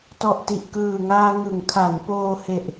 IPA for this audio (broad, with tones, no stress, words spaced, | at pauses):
tɔ˨˩ʔti˨˩ʔkɯː˨˩ŋaː˧ ŋɯ˩˦ŋkʰa˩˦n poː˧he˨˩ʔ